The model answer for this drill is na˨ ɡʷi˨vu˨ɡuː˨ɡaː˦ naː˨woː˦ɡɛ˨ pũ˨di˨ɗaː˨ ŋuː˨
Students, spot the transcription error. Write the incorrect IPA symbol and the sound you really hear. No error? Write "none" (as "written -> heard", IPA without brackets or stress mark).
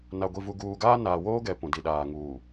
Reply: none